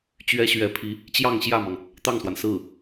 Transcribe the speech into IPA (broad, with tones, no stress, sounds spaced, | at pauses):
t͡ɕ ɥ ɛ˥ ɕ ɥ ɛ˧˥ pʰ i˧˥ | t͡ɕ j ɑ˥˧ ŋ ɕ j ä˥˩ m ɑ˩ ŋ | t̪ ɑ˥˩ ŋ s w a˩ n s ɹ̩˥˩